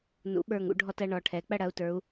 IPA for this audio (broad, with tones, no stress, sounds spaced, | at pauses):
n ṵ˩˧ ɓ ə˞˨˩ ŋ ṵ˧ ɖʱ ɔ˧ t ɐ˧ ɳ ɔ˩˧ ʈʰ ɛ˩˧ k͡p ɐ˥˩ ɽ ɐ˩˧ u̯ t ə˞˩˧ u̯